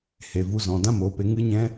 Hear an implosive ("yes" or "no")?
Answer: no